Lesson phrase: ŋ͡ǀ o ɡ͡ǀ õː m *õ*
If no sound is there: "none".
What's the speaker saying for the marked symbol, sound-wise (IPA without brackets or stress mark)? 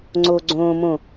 õ